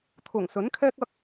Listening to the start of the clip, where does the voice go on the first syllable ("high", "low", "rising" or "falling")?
low